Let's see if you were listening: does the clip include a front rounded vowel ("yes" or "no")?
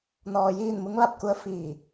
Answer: no